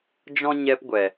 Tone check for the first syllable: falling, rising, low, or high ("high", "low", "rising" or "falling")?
high